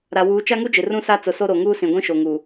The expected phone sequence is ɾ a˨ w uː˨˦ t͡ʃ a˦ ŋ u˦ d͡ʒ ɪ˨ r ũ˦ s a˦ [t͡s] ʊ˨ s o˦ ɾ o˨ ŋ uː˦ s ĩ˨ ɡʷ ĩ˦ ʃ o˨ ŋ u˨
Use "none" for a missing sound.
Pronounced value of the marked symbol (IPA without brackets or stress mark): t͡s